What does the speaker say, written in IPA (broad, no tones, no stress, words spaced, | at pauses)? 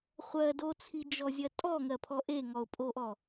χʷɜ dot͡sʰid͡ʒɔzʲɜ tʼɔŋɜpʰɔ ʔeŋɔʊ̯pʼoʔɔ